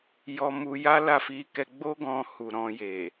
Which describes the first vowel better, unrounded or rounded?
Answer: rounded